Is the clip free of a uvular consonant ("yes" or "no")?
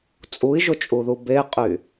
no